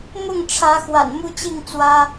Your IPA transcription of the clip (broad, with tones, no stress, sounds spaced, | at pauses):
m ʊ˥˨ ŋ ʈ͡ʂʰ ä˨˦ x w a̰˨˩ n m u˦ t͡ɕ i˥˨ ŋ t͡s w ä˦